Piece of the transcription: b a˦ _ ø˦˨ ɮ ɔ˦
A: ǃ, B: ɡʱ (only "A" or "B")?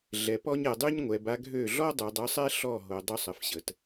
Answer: B